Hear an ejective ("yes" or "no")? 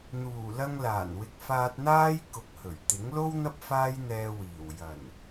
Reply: no